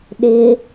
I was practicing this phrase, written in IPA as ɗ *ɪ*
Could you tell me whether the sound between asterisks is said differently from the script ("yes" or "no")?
no